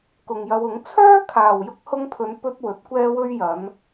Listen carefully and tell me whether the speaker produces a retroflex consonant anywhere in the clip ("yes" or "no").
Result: no